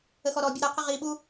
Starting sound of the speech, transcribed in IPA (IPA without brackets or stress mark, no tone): ə